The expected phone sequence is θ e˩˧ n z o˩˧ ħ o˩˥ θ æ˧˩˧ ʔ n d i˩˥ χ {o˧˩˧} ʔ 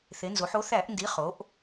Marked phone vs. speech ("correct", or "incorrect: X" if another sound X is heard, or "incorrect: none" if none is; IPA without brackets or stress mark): incorrect: o˩˧